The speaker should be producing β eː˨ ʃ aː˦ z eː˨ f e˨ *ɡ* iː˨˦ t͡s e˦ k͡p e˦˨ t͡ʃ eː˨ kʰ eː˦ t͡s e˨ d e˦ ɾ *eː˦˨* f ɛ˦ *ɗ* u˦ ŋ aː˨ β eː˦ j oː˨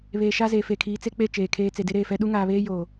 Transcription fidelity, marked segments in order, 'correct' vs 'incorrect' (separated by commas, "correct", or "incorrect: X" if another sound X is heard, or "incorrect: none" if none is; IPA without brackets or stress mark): incorrect: kʰ, correct, correct